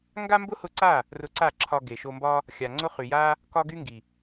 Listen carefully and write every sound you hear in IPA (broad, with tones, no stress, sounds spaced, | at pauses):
ŋ ɡ a˦ m b ʊ˦ h ʊ˧ ǀ a˦˨ | r ʊ˧ ǀ a˦˨ ǁʰ ɒ˧ ɡ e˨ ʃ o˧ m b ɒ˦ | xʲ a˨ ŋ͡ǀ ʊ˦ χ y˨ j a˦ | k ɒ˦ ɡ y˦ ŋ ɡ i˨